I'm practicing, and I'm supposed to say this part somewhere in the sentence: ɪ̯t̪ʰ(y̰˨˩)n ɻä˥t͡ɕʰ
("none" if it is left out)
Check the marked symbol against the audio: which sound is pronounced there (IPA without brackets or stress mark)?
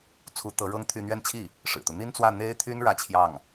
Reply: y˥